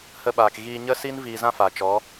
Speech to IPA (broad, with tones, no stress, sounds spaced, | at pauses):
h ə˧ ɓ aː˨ k ɣ iː˧ ɲ ə˦ s i˦ n v iː˧ z ã˦ f aː˨ t͡ʃ ɔ˨˦